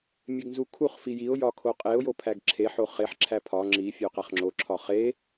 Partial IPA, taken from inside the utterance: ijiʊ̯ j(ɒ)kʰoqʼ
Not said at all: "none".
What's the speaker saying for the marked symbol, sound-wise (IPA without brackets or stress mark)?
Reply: ɒ